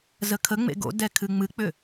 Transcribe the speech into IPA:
z ə kʰ ə ŋ͡m ḛ ɡ o̰ d ɛ kʰ ɨ ŋ͡m ɨ k͡p ʏ

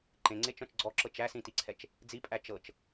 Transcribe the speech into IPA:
ǃ ẽ ŋ͡ǀ e t͡ʃ ɔ̃ t͡ʃ ɡ͡ǀ ɔ ǁ ɤ t͡ʃ æ s ĩ t i ǀʰ ɛ t͡ʃ | d͡z i pʼ æ t͡ʃ ɤ t͡ʃ

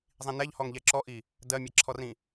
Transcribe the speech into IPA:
zˤ ĩ n ɛ ʎ h ɔ ŋ ʎ ɛ ǁ ɔ ʔ i | d ɜ mʲ a ǁʰ ɔ r ĩ

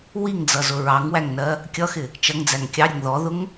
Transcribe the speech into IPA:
w i ŋ d͡z ʌ z ʊ ɹ ɑ ŋ w æ ŋ n ɜ | kʲ ʌ x ɪ | t͡ʃ ʌ ŋ d͡z æ ŋ kʲ ɑ ɾʲ ʌ ŋ ð ɔ ð ʊ ŋ

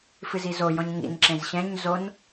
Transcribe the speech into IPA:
f ɨ z i z o j ɔ̃ ɲ ŋ ḭ n ǁ ẽ z ɕ ɛ̃ ɲ z o n

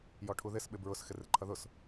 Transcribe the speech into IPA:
j ɔ ʈʰ u ð ɪ s ɓ ɪ b ɹ ʊ s x ɪ r ɪ ǃʰ ʌ ð ʊ s

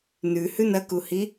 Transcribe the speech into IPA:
n ʉ h ʉ n ɐ k u h i

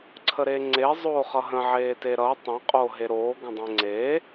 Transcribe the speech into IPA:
ǀʰ ə ɾ eː ŋ͡ǀ e zˤ oː χ ʌ ɦ ə̃ ʕ eː t e ɾ ʌː tˤ ẽ qʼ o ɦ e ɾ oː ɡ ə̃ dˤ ẽ ŋ͡ǀ eː

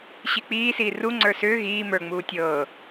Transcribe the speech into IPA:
ɕ i k͡p iː s iː r u ŋ͡ǀ ə˞ s ʏː ɣ iː m ə˞ ŋ͡m uː tʲ ɤː

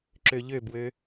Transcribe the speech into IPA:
ǁ ø ʎ ø b w ø

